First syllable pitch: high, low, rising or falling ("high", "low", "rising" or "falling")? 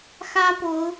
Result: high